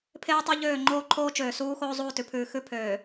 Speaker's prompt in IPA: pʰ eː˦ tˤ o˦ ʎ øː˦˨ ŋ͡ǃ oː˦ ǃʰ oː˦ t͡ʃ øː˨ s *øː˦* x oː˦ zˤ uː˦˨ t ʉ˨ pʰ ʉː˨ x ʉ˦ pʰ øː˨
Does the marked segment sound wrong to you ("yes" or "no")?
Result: yes